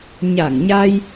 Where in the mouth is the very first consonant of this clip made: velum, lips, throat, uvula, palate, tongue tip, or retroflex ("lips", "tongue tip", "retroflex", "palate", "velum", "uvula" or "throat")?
palate